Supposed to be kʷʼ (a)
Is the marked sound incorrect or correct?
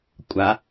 correct